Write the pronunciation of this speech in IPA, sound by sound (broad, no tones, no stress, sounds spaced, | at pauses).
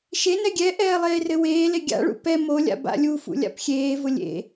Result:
ʃ e n ɛ ɡʲ ɛ ʔ ɛː lˠ eː r ɘ w eː l e ɡʲ a̰ ɭ ṵ p ɛ m o lʲ a̰ b a̰ lʲ u f ṵ lʲ a̰ p xʲ eː v ʊ lʲ ḛ